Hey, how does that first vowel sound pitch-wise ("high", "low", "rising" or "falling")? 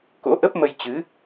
rising